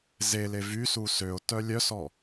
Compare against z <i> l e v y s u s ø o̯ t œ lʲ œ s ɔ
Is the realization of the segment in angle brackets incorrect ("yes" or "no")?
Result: yes